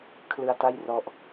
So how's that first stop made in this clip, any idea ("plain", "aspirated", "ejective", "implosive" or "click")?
aspirated